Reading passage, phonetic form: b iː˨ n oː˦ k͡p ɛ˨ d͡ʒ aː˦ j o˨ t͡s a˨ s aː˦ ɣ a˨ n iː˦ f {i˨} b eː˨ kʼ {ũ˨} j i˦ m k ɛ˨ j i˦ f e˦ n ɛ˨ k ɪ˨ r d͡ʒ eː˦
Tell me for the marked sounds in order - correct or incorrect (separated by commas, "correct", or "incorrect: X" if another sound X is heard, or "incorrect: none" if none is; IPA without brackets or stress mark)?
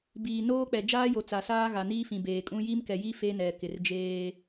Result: incorrect: ĩ˨, incorrect: ũ˦